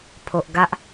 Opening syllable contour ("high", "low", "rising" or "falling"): low